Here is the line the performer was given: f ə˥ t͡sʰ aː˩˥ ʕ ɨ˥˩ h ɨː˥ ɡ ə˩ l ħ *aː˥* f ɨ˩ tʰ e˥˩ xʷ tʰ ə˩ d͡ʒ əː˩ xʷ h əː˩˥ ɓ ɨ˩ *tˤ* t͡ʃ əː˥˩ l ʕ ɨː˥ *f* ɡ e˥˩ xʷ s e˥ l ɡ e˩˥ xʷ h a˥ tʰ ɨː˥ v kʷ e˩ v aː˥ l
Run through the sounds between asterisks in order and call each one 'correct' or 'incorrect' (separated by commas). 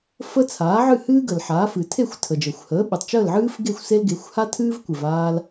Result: incorrect, correct, correct